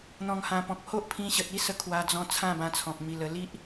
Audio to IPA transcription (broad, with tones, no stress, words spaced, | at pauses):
n̪ɔ̃˨˩ŋhã˨˩pɔ̃˨k̚ ho˦ʔpʰĩ˧ ɕə˨t̚i˦sə˧ kʰwa˧d͡zɔ̃˧ t͡sʰã˥˧bã˧t͡sʰɔ̃˨k̚ mi˧lə˧ li˦ʔ